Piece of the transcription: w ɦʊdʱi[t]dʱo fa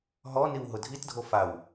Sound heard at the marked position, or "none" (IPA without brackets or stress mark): t